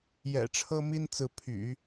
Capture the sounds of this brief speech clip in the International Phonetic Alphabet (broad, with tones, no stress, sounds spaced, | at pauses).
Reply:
j ɛ̰˨˩ ʈ͡ʂʰ ɤ˥ m i˥ n t͡s ɹ̩˧˥ pʰ y̰˨˩˦